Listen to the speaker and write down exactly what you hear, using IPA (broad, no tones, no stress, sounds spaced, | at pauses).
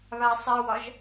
β a sˤ ɛ w ɒ ʒ